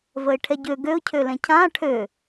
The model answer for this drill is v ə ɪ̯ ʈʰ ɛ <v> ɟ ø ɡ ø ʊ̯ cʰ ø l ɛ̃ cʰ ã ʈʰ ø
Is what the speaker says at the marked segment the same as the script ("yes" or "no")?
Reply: no